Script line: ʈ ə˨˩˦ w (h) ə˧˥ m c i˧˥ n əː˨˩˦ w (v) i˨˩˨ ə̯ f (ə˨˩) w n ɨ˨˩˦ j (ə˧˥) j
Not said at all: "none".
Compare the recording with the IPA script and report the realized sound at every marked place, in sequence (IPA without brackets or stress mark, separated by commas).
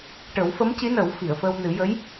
f, f, ə˧, ə˧˥